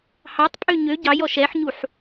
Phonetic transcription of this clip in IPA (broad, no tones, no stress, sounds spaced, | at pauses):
h ɑ tˤ pʼ ø ɲ ø ɟ ɑ j ɔ ʃ ɛ ħ ɲ u ħ